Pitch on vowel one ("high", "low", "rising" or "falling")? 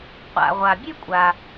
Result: low